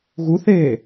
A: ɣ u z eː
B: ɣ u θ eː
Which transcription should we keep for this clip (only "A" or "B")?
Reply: B